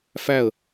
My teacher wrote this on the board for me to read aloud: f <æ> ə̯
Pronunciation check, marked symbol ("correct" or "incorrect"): correct